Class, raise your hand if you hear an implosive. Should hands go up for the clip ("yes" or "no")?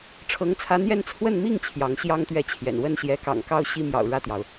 no